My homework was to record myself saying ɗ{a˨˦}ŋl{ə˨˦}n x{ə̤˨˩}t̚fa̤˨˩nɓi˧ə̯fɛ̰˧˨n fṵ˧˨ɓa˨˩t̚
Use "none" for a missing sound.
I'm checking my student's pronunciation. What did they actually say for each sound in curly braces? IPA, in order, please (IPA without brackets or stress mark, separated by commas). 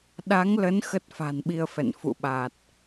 a˨˦, ə˨˦, ə˦˥